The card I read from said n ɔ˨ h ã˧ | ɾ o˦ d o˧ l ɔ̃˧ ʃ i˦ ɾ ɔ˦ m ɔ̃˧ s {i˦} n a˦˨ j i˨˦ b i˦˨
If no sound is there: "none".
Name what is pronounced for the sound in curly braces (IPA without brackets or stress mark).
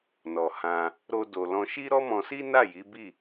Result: i˦